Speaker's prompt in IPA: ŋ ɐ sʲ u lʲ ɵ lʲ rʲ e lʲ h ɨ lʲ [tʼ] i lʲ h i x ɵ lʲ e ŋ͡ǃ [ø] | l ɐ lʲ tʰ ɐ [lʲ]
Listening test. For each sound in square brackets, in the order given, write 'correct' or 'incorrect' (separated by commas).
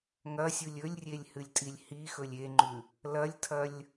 correct, incorrect, correct